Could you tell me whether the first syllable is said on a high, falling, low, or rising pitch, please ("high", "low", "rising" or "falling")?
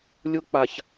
high